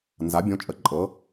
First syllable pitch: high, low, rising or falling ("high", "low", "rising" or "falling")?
rising